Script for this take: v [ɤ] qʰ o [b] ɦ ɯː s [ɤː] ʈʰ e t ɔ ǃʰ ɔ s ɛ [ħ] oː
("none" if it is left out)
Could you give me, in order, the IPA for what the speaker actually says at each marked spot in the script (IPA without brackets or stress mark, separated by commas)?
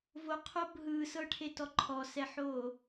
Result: o, b, ɤ, ħ